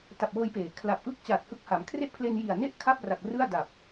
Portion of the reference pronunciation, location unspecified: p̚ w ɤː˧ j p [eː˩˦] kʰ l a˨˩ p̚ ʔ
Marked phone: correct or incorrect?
correct